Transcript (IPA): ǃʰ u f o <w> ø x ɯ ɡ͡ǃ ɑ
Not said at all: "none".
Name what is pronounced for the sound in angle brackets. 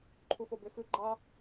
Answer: b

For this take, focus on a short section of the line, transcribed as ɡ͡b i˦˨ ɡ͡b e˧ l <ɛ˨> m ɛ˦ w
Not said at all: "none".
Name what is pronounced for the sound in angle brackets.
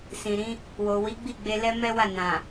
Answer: ɛ˦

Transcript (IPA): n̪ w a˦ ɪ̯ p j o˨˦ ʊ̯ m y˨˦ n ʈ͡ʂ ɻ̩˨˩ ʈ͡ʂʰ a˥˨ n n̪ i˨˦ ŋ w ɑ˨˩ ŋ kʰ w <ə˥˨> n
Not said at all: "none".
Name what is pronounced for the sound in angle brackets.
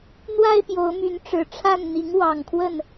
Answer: ə˥˨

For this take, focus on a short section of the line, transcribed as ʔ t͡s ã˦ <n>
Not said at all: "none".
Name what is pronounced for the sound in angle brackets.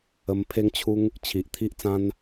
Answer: n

